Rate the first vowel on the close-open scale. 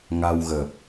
open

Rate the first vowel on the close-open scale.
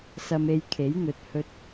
open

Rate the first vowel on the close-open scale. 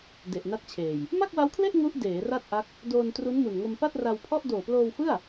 mid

